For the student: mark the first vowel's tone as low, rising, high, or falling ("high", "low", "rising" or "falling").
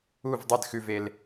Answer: falling